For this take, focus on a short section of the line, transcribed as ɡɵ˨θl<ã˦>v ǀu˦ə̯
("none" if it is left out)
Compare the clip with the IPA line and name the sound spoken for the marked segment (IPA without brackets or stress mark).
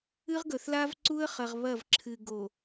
a˦